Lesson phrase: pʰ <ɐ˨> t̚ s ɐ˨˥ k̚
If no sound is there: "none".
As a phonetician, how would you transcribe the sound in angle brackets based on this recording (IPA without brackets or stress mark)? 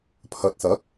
ɐ˨